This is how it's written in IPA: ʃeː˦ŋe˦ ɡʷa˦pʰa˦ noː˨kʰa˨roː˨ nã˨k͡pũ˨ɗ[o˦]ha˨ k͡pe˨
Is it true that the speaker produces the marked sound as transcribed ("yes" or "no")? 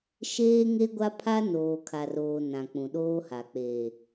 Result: no